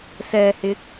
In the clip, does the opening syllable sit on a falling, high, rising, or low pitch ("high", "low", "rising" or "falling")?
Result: low